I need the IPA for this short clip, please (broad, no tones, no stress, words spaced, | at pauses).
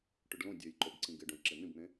ʈʏɖlõ dʲøjǃobǀĩ ɡɪ ɖõjǁen̪ĩbn̪ẽ